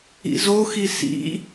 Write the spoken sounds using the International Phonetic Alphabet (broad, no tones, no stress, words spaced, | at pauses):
ḭzoxi sḭ